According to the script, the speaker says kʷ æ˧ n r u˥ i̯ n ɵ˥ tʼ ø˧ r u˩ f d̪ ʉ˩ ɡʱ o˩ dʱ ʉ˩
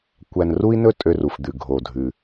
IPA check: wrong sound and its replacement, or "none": none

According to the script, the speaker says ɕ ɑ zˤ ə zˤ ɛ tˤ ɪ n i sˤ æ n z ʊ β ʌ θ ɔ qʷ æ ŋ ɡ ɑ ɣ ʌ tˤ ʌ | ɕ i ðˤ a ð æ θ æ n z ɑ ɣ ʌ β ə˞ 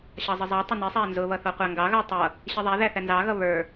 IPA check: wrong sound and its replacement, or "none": a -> æ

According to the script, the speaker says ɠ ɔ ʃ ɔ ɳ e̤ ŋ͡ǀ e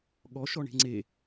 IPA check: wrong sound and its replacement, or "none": none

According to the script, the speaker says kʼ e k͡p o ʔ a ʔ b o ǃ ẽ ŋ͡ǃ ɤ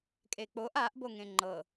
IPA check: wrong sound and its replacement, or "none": ǃ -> ŋ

